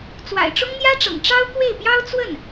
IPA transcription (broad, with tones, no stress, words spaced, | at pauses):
t͡swa̰˨˩ɪ̯ʈ͡ʂʊ˥ŋn̪jä˥ʈ͡ʂɤ̰˨˩ŋ ʈ͡ʂɑ˥ʊ̯kwe˥˩ɪ̯pjɑ˥ʊ̯ t͡swə˥˩n